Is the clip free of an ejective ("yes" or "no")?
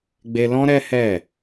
yes